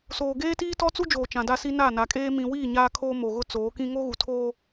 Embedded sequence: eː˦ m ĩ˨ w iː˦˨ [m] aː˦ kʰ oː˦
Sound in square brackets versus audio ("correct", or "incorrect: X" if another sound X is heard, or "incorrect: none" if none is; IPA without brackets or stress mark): incorrect: ɲ